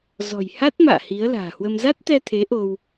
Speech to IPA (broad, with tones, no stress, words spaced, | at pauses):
zɔ̤˨˩j ha˦˥t̚ ma̰ː˧˨ hi˨˦ə̯la̤ː˨˩hwə˧m za˦˥t̚t̪ɛ˧t̪ʰe˨˦ ʔo˧w